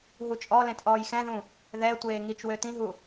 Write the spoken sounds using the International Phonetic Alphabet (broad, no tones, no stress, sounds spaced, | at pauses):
ɦ u t͡ʃʼ ɔ l ẽ t ʔ ɔː j x ɛ̃ ð ũ | ð ɛ tʷ eː ŋ i t͡ʃ w ø t ĩ ɦ u